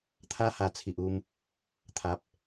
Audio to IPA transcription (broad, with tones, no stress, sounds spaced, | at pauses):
t̪ʰ a˦ h a˨˩ t͡sʰ i˨ ʔ u˧ m | t̪ʰ a˨ p̚